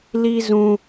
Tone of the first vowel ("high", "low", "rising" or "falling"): high